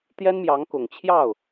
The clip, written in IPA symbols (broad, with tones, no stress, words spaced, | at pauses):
t̪jɛ˥nmjɑ˧˥ŋkʊ˨˩ŋ t͡ɕʰjɑ˥˩ʊ̯